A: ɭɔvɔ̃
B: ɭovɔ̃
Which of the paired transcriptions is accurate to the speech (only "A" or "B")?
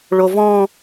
B